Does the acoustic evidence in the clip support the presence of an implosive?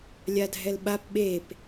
yes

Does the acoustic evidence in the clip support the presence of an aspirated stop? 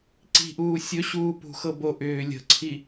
yes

